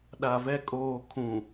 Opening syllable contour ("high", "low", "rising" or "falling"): low